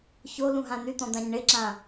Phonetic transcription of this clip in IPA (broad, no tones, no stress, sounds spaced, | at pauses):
ç o l ũ ɦ ã n̪ y t̪ ɔ̃ d̪ ã ɲ ɳ ɪ ǁ ã